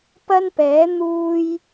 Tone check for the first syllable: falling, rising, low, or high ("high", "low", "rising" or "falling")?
high